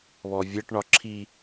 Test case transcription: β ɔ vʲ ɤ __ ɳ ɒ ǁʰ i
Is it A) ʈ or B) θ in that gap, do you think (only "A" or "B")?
A